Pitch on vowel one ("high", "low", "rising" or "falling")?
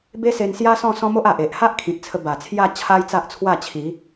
high